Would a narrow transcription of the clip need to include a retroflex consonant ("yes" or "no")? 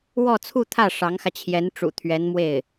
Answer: yes